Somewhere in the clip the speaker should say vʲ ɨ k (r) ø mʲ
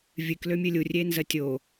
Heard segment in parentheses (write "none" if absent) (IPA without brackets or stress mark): l